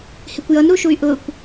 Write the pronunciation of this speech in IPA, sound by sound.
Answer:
hɪkʷjʌn ɾuʃuy̯ʔʊkʷ

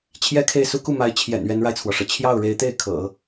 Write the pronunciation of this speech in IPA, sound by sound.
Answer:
t͡ɕʰjɛ˥kʰe˥˩ɪ̯su˥ ku˥˩ma˧˥ɪ̯t͡ɕʰjɛ̰˨˩n ɥɛ˧˥nɻa˧ɪ̯t͡sʰwɔ˩ʂɤ˩ t͡ɕʰjɑ˥˩ʊ̯ɻe˧˥ɪ̯t̪e˥˩ɪ̯ kʰɤ̰˨˩˦

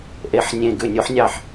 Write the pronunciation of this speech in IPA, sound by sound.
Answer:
ʔe˧˩˧ħ nʲẽ˧˩ɡʉ˧˩nʲo˨˥ħ nʲɑ˧˩ħ

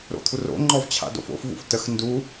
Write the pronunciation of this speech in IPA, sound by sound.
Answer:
ɾo̰t̪ʰuro̰ŋ͡ǃɔv t͡ɕʰa̰do̰fo̰fvṵf təx ndu

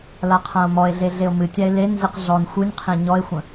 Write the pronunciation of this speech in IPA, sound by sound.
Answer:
laqʰão̯mɔe̯ɮe ɮeo̯mɨtʲae̯ lenzɨq ɮɔn xʷɨnʲqʰẽ ɲɔe̯xʷə̃

